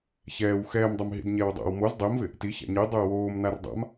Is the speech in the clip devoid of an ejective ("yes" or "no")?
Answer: yes